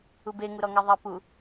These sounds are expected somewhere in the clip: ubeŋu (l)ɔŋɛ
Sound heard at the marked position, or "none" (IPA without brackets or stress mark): ɾ